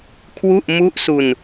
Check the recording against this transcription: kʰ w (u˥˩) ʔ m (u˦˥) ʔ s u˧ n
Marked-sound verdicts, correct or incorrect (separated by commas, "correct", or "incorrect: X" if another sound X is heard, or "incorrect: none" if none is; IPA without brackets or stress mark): correct, correct